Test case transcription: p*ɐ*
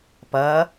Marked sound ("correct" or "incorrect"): correct